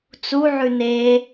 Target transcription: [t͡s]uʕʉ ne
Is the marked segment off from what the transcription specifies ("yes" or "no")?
no